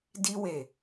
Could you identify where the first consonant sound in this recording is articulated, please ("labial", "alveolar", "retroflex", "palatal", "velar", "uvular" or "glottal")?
alveolar